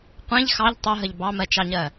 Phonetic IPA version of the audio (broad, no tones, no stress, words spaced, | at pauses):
qʷẽʎ xɑʎ tˤɘɦəʎ bɑmɜt͡ʃɑɲɜ